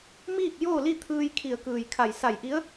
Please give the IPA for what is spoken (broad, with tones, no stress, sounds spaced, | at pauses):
m iː˥˨ k̚ j oː˥˨ l i˥˨ t̪ʰ ɯː˧ j kʰ i˧˩ ə̯ k ɯː˧˩ j kʰ a˧˩ j s a˧˩ j ʔ i˧˥ ə̯